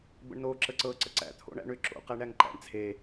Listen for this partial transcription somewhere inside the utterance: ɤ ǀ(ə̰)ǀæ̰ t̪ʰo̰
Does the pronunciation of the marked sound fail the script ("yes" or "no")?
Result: no